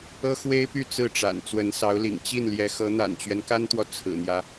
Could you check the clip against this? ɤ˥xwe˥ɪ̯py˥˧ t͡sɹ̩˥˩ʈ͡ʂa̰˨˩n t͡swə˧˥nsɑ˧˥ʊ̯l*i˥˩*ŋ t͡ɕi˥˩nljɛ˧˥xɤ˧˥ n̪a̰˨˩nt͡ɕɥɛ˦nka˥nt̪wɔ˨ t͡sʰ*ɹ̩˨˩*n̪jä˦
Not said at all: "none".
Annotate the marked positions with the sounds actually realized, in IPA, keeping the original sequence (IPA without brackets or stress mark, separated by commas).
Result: ḭ˨˩, ɹ̩˨˩